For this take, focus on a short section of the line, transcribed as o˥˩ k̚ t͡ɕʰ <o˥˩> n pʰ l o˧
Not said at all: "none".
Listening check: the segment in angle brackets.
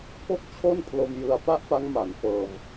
o˥˩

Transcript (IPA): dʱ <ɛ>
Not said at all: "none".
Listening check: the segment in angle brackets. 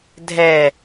ɛ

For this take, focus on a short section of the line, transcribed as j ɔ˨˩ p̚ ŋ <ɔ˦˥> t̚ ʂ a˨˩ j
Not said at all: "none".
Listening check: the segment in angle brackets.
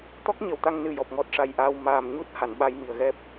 ɔ˦˥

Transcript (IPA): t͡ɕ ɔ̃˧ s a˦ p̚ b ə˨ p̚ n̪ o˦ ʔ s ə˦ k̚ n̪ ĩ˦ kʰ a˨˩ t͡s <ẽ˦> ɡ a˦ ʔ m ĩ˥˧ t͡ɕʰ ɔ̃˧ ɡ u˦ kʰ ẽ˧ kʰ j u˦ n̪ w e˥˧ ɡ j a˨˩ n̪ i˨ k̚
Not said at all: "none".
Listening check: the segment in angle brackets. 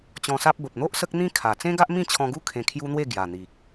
ẽ˦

